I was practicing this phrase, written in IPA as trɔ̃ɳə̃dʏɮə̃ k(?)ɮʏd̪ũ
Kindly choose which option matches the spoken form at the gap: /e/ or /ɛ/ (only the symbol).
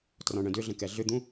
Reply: ɛ